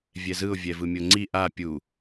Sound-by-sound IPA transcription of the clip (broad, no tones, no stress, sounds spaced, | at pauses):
vʲ ɛ z ɯ ʊ̯ vʲ ɛ v ɯ mʲ o ŋ͡ǀ i ʔ a pʲ u